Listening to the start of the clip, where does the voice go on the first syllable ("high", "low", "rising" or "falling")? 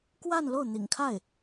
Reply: falling